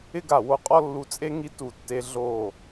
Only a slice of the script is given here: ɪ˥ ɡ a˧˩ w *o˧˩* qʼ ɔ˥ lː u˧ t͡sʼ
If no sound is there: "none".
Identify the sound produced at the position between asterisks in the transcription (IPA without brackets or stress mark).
o˧